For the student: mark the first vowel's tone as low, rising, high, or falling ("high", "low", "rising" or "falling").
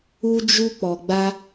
high